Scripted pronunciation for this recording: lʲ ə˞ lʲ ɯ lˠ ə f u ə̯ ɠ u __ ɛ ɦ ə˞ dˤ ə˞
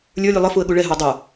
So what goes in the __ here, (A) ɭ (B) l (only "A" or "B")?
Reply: A